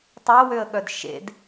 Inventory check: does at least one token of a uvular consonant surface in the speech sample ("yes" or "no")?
no